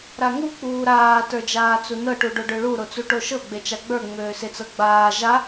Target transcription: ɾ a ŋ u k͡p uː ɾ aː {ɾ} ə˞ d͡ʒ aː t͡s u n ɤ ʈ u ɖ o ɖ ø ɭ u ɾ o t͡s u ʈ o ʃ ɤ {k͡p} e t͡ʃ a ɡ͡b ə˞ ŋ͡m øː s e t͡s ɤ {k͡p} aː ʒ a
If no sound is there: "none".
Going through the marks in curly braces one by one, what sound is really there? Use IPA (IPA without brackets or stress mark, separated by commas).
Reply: t, ɡ͡b, ɡ͡b